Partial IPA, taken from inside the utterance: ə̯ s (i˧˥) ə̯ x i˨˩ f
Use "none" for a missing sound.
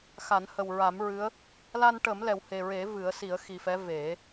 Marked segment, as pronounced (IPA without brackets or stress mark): i˨˩˦